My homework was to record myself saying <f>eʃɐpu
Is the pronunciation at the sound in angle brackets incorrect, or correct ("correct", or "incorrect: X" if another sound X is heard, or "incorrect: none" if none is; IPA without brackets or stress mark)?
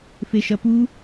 correct